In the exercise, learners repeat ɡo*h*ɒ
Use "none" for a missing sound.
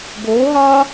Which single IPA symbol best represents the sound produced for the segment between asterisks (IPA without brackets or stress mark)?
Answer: ɦ